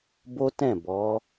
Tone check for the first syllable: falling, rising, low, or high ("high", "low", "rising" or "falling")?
high